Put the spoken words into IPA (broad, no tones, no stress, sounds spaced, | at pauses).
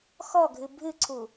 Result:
x ɔ ɡʱ ɨ bʱ ɨ ǀʰ u